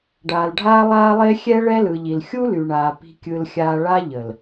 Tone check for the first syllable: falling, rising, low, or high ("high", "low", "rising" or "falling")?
low